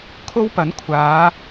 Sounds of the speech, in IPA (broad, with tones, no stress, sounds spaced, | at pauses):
kʰ o˥ w p ɐ˨˥ n kʷʰ aː˨˧